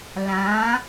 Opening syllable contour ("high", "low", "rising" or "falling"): rising